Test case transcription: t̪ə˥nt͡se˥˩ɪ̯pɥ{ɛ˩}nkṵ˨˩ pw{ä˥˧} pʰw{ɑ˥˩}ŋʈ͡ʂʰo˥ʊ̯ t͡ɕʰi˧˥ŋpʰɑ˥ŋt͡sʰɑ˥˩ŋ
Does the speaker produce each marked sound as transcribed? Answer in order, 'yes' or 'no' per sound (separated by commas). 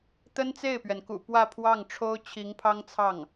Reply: yes, yes, yes